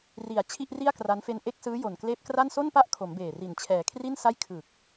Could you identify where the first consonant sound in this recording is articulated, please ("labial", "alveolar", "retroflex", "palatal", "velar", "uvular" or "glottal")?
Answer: alveolar